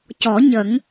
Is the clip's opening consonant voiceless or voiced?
voiceless